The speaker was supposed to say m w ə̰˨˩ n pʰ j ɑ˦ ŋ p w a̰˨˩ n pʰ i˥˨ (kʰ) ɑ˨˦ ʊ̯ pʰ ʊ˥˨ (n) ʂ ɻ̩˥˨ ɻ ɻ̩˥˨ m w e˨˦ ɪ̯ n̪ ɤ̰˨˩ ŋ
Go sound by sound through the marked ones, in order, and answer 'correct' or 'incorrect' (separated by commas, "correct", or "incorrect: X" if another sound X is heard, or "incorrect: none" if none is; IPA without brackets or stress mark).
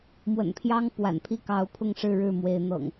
incorrect: k, incorrect: ŋ